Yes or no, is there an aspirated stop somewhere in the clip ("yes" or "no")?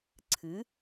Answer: yes